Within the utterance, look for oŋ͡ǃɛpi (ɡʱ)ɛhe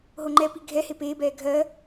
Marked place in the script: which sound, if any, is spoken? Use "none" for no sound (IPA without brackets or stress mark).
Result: ɡʱ